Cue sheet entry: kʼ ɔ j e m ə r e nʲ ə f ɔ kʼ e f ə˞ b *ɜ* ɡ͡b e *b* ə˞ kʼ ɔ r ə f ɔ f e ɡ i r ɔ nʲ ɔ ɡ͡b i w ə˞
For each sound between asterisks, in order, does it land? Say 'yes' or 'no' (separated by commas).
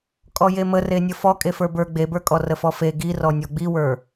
no, yes